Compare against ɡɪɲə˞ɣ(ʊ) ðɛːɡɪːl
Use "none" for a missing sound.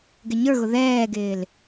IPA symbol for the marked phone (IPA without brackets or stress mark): ʊ